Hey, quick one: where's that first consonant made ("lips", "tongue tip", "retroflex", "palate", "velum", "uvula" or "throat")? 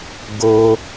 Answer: velum